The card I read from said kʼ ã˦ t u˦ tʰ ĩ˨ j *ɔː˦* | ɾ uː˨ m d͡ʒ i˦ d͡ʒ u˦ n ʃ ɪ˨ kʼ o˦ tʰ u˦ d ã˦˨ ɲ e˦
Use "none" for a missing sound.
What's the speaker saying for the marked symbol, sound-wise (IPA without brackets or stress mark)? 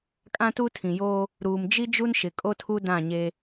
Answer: oː˦